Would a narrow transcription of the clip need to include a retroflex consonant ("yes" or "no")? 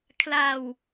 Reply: no